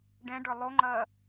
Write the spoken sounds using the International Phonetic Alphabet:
ɖ ɛ̃ ɖ ə˞ lˠ o ŋ͡ǃ ɐː

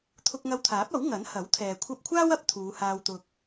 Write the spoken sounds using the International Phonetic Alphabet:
t̪ʰ ʊ˧ k̚ ŋ ɐ˧ w t̪ʰ aː˨˥ p̚ ɐ˨˥ w ŋ ɐ˨˥ n h ɐ˨˥ w t̪ʰ ɛː˨ kʷʰ ɐ˧ p̚ kʷʰ aː˥ w ɐ˧ p̚ t̪ʰ uː˨˧ h aː˧ w t̪ ʊ˧ k̚

